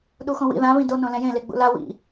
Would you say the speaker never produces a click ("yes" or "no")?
yes